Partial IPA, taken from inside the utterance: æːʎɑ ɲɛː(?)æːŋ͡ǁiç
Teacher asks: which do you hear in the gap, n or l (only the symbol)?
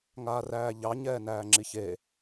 n